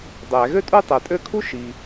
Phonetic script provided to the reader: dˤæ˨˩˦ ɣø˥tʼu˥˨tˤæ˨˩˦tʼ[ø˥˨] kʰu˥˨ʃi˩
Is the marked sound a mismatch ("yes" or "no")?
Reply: no